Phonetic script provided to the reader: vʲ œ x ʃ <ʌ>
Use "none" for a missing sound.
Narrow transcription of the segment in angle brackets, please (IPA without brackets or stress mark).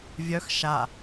a